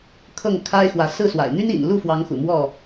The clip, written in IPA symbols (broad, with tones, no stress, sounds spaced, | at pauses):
kʰ ɤ˥˨ ŋ kʰ a˦ ɪ̯ x w ä˨˦ s ɹ̩˥˨ s w a̰˨˩ ɪ̯ n̪ y˦ n ḭ˨˩ n l u˥˨ f w ɑ˨˦ ŋ x ṵ˨˩ m w ɔ˥˨